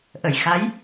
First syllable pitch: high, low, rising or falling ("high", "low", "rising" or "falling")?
low